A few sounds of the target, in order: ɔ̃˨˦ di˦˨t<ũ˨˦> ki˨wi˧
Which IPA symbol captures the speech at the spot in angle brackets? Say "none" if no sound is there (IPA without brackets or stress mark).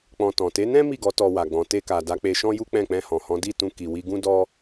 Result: ũ˧